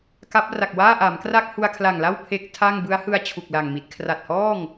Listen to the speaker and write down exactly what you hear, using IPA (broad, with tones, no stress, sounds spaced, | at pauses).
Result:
k a˦˥ p̚ r a˨˩ k̚ w aː˥˩ ʔ a˩˦ m k r a˥˩ k̚ h u˧ a̯ kʰ l a˨˩ ŋ l a˥˩ w pʰ e˦˥ k̚ tʰ a˥˩ ŋ b ɯ˦˥ a̯ h ɯ˧ a̯ t͡ɕʰ u˨˩ k̚ l a˨˩ ŋ m i˨˩ t̚ kʰ r a˨˩ t̚ h ɔː˥˩ ŋ